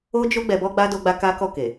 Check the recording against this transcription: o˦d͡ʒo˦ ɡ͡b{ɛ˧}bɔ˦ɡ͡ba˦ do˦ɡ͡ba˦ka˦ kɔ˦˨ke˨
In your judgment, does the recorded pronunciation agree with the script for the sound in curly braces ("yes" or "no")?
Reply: yes